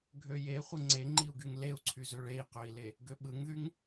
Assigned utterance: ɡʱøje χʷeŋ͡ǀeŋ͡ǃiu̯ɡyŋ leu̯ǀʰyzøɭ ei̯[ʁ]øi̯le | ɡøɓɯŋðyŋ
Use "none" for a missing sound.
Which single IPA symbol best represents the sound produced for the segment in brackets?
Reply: q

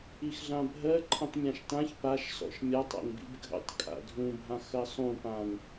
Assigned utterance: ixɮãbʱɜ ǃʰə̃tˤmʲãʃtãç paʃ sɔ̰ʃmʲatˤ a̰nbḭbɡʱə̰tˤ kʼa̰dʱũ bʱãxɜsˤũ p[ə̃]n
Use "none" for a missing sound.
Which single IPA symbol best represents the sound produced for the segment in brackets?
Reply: ã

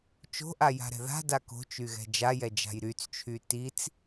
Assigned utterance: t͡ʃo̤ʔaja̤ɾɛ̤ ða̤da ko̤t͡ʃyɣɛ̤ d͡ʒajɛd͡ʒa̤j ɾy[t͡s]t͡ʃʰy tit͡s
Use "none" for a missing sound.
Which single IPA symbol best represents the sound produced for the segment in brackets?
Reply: t͡s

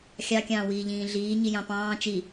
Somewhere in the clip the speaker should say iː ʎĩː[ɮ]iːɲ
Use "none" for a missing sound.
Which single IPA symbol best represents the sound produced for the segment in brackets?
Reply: ɮ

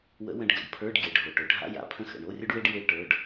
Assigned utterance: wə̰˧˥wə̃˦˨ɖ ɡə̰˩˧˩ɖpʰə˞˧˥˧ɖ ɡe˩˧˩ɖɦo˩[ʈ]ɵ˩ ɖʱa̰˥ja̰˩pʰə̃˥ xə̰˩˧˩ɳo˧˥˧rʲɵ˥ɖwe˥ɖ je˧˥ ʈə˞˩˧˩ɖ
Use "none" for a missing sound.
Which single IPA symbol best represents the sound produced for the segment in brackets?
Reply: ʈ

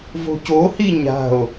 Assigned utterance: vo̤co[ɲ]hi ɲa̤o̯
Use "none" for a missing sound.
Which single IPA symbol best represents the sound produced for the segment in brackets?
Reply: none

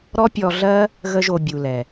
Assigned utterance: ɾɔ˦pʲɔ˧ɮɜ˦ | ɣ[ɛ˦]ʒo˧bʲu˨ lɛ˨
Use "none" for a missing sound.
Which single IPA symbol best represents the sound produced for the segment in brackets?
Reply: ə˦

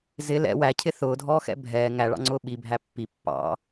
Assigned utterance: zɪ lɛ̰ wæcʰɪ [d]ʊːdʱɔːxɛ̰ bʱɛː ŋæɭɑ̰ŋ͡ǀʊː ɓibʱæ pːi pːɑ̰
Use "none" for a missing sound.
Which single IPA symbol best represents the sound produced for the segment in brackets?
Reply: θ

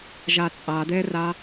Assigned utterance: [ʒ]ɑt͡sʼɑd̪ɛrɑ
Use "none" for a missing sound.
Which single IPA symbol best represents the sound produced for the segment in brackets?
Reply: ʒ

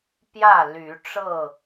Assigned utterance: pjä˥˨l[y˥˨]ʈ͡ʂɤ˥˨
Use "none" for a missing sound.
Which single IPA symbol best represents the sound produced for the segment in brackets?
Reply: y˨˦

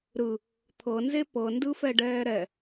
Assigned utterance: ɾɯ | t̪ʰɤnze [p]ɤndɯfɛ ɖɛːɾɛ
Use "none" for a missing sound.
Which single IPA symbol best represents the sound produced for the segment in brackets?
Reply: p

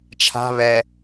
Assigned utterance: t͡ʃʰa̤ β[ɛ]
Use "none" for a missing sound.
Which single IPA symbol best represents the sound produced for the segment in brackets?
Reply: ɛ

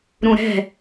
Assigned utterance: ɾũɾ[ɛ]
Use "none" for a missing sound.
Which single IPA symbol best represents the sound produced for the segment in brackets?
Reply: ɛ̤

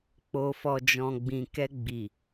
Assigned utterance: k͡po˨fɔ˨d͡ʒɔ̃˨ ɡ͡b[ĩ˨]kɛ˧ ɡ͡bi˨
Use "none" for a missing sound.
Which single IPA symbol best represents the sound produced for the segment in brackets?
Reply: ĩ˨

